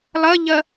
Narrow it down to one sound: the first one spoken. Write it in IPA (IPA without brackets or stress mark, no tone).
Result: lˠ